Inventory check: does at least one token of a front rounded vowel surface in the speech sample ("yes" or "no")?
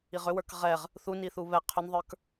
yes